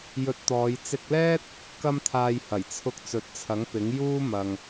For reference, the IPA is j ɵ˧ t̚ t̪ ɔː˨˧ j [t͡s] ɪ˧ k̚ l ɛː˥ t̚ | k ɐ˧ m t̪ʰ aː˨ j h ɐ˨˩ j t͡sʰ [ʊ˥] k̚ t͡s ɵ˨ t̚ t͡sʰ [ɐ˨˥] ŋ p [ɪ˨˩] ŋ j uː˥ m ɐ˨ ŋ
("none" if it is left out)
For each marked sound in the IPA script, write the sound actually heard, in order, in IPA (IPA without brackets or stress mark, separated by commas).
t͡s, ʊ˧, ɐ˨˥, ɪ˨˥